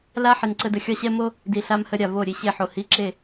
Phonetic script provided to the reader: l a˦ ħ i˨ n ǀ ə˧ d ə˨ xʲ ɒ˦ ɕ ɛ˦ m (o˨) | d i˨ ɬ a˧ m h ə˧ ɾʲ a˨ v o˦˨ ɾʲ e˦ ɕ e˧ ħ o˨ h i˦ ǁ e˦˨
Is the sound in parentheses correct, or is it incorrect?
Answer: incorrect